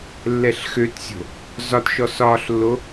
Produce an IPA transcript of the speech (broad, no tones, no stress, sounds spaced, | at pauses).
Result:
lː ɛ ɬ x ø t sʲ o̤ | z ɒ t ʃ ɔ s ɒː ɬ lː o